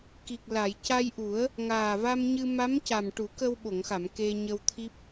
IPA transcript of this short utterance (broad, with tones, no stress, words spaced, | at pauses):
ki˨˩k̚la˨˩˨j ca˧jʔu˨˩˦ə̯ | ŋaː˨˩va˧mɲɨ˧ ma˧˥mca˨˩m ʈu˨˩˦kə˧wɓo˨˩˨ŋxa˨˩˨m ke˧ɲə˧wt̪ʰi˦˥p̚